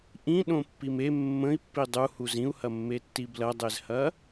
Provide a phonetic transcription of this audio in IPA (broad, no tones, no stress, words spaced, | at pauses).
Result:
ʔĩɗõpːim e mːə̃i̯pːi dˤuhuz ĩu̯hɐmːetːi blɐdˤezhɐ